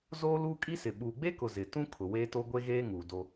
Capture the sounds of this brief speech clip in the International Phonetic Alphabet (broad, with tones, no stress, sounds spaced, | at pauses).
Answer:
z oː˦ l uː˦ kʼ i˦ s ɪ˨ ɓ uː˨ ɡ͡b e˦ k ʊ˨ z ɪ˨ t ũ˦ kʰ ʊ˨ w eː˦ t o˦ ɡʷ e˦ ɣ eː˦ ŋ uː˨ d o˦